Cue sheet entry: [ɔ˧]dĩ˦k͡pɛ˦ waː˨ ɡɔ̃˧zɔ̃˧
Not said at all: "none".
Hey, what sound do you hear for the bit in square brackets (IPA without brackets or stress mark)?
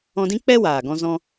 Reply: ɔ̃˧